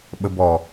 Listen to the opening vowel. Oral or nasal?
oral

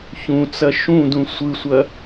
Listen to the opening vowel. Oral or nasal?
nasal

